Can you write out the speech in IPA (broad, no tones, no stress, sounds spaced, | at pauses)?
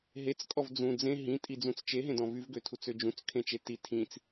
ɦ e t͡s kʼ ɔ v d͡z ũ d͡z ẽ ɦ ĩ tʼ i d͡z ũ t͡s t͡ʃ e ɦ ẽ d ɔ̃ v y v ɡ ø tʰ u t͡s ø d͡ʒ ũ t͡s kʰ ẽ t͡ʃ e t i tʰ ĩ t͡s